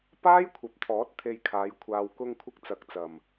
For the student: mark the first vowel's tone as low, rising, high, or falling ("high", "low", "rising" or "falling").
high